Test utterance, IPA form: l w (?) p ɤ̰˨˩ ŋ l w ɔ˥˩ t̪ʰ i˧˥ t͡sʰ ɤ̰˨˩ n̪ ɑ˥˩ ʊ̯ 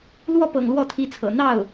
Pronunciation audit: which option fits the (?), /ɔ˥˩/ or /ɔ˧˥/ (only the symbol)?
ɔ˥˩